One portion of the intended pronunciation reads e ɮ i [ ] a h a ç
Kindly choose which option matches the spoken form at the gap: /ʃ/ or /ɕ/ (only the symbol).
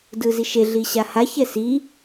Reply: ɕ